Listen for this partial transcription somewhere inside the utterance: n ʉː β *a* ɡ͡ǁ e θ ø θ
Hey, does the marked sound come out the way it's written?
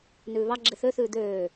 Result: no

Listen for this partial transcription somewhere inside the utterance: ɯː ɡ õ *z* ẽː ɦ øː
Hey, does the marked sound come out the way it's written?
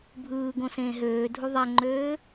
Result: no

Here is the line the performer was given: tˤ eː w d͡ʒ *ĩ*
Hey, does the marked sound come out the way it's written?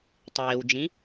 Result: yes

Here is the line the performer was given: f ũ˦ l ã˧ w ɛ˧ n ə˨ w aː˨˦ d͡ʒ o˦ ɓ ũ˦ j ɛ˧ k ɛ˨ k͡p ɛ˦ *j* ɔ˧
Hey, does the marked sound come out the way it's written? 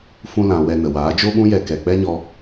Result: no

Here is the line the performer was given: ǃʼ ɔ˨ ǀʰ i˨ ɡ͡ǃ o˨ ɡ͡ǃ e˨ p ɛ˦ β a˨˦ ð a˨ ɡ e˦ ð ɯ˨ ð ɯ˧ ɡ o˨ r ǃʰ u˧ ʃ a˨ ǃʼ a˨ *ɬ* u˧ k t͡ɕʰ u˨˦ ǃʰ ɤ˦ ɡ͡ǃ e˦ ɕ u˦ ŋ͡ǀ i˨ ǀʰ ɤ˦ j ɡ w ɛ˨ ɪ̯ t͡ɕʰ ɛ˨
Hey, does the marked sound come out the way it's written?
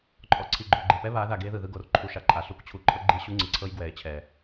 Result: yes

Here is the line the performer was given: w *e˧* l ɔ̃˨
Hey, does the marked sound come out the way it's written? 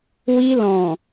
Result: no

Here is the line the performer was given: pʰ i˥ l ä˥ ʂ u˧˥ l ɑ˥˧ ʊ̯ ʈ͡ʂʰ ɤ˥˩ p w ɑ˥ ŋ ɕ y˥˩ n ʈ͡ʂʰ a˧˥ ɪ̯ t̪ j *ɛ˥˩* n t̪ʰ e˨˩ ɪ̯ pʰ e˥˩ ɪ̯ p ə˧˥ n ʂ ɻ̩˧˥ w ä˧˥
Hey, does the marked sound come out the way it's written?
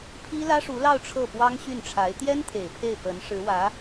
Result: no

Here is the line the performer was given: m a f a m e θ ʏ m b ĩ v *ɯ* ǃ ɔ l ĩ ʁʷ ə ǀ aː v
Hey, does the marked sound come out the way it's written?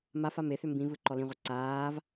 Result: yes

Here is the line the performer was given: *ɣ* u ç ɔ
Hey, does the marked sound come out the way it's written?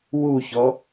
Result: no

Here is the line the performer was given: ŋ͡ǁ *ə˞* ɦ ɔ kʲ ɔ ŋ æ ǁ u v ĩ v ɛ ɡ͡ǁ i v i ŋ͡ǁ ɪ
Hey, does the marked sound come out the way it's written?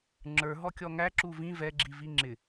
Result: yes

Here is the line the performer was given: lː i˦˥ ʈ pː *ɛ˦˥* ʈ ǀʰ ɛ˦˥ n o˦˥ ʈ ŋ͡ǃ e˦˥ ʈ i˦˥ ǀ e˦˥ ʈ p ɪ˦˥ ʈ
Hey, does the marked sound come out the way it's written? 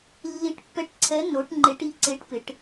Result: yes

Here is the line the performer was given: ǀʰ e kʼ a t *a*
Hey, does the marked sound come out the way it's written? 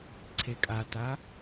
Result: yes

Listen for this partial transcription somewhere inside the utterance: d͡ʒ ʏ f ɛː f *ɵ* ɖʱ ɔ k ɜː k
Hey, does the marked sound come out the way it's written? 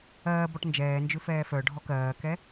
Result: no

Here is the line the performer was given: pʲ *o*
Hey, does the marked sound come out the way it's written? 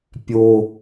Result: yes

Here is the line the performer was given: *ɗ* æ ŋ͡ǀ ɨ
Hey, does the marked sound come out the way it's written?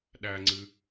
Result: yes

